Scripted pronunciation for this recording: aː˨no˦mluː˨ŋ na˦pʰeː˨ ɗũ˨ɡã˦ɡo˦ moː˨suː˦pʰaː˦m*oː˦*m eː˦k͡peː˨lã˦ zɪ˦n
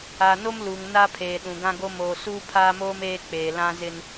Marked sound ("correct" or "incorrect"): correct